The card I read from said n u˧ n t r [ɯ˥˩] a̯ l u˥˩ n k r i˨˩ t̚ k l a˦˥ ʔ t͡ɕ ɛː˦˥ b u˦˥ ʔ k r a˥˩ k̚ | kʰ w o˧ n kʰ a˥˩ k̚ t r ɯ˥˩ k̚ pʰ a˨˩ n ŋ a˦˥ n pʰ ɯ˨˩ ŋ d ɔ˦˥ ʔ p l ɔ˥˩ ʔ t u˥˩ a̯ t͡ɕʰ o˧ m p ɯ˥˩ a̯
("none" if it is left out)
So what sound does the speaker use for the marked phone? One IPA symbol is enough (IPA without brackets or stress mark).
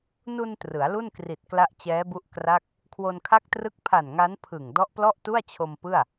ɯ˩˦